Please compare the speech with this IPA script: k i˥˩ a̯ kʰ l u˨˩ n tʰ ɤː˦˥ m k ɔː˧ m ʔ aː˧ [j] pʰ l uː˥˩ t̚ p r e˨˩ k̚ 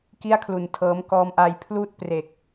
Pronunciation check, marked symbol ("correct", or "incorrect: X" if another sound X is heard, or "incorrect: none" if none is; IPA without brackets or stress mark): correct